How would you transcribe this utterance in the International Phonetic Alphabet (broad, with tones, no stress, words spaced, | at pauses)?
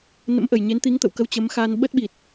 nə̰˧˥mʔə˨˩j ɲe˨˦nt̪i˨˦ŋt̪ə̰˧˨w kə˧wt͡ɕə˨˦mxaː˧n ɓə˦˥t̚ɓi˨˩t̚